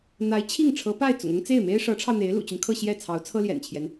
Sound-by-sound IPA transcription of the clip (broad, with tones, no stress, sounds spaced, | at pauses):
n̪ a˧˥ ɪ̯ t͡ɕʰ i˥˩ ŋ ʈ͡ʂʰ ɤ˧˥ p a˥˩ ɪ̯ t͡s ʊ̰˨˩ ŋ ʊ˥ ŋ t͡s e˥˩ ɪ̯ m e˥ ɪ̯ ʂ ɤ˧˥ ʈ͡ʂʰ ɑ˧ ʊ̯ n̪ e˧˥ ɪ̯ l ṵ˨˩ t͡ɕ y˦ n kʰ ɤ˥˧ ɕ j ɛ˥˩ t͡sʰ ɑ˧˥ ʊ̯ t͡sʰ ɤ˥ l j ɛ̰˨˩ n t͡ɕʰ j ɛ˦ n